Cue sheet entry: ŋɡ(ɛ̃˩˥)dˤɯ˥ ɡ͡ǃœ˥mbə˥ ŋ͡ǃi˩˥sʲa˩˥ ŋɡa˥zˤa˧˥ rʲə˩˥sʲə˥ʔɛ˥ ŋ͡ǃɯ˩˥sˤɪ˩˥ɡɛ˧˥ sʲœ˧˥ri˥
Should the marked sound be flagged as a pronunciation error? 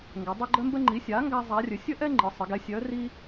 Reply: yes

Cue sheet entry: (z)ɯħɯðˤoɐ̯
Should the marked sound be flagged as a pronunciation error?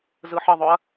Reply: no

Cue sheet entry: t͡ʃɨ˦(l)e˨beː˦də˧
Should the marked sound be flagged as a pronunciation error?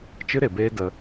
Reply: yes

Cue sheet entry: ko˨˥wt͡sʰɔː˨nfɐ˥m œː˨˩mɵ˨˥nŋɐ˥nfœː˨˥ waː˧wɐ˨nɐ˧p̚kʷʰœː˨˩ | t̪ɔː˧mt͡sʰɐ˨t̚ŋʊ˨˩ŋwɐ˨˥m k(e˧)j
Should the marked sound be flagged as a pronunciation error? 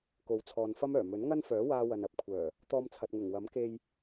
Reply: no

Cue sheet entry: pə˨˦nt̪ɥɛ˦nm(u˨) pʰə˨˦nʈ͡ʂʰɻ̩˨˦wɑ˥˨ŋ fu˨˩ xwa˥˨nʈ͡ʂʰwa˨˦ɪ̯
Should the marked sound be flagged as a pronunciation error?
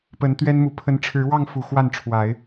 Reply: no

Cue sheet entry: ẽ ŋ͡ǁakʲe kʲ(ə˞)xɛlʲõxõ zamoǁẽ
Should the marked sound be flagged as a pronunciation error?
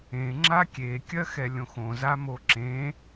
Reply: yes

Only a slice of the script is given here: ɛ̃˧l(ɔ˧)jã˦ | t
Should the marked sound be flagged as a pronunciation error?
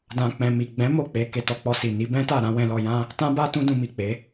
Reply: no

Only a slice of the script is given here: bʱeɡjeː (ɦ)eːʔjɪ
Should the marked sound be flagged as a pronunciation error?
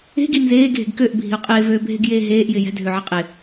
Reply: no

